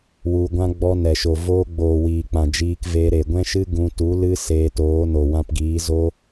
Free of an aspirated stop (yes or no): yes